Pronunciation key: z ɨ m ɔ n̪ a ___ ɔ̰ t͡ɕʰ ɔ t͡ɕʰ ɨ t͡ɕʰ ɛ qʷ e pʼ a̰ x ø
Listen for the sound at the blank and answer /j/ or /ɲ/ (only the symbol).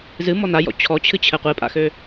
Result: j